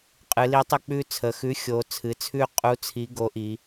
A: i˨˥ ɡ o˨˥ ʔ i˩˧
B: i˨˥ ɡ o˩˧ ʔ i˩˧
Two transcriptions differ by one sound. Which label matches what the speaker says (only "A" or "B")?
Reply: A